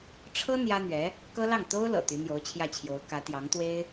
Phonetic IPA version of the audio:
ʈ͡ʂʰ ɤ˥ n̪ j ä˥ n̪ ɥ ɛ˧˥ | k ɤ˥ l ɑ˥˩ ŋ t̪ o˥ ʊ̯ l ɤ̰˨˩ t̪ y˧˥ n̪ j o˧˥ ʊ̯ t͡ɕʰ j ä˥˩ t͡ɕʰ j o˧˥ ʊ̯ k ä˧˥ t̪ j ɑ˧˥ ŋ t̪ w e˥ ɪ̯

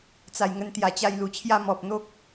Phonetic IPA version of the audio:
t͡s a˨˩ j ŋ ə˧ n t̪ j a˨˩ t͡ɕ a˧ j l u˨˩ t͡ɕʰ j a˦ m ɔ˨ p̚ n̪ o˦ k̚

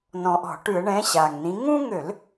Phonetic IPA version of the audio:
n ɔ̃˨˩ ʔ ɔ̤˧˩˧ ʈ ʉ˧˩˧ ə̯ ɳ ɛ̃˨˥ ɕ a˨˩ ŋ n ĩ˨˥ ŋ ũ˦ ŋ ø˧˩˧ l

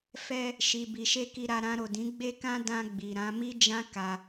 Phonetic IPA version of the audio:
f ɛ˧ | ʃ i˨ b i˨ ʃ e˧ k i˧ ɾ a˧ ɾ ã˧ ɾ o˨ d ĩ˨˦ ɡ͡b e˦ k ã˦ d ã˧ ɡ͡b i˨ ɾ ã˨˦ m i˦ d͡ʒ ã˦ k a˧

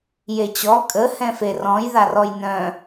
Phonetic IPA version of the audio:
j e t͡ɕ ɔ kʼ ə h ɛ̃ f e r ɔ̃ j ð a r ɔ j n œ̃

